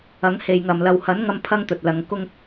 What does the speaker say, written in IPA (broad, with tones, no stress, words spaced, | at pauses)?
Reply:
ɐ˨˥ŋhe˨jŋɐ˨m lɐ˧w hɐ˨˥n ŋɐ˥mpʰɐ˥ŋt̪ɵ˨t̚ lɐ˨˧ŋkʊ˥ŋ